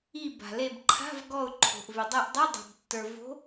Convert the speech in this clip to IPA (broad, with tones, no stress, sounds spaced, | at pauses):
i˧˩ b a̤˩ l e˧˩ b ǃʰ a̤˧˥˧ v ɡ ɔ˧˩ ʊ̯ ǃʰ o̤˩ ʔ v ʏ˩ dˤ e˧˩ ʔ dˤ o˧˥˧ dˤ o̤˩ b tː ə˞˩ v o̤˨˦